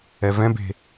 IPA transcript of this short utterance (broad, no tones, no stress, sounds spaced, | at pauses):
ɛ v ɛ̃ b e̤